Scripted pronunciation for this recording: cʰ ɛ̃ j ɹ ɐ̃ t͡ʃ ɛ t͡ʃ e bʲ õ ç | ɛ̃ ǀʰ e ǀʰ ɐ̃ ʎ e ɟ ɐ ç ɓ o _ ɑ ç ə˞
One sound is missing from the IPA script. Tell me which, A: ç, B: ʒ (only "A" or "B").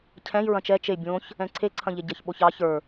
A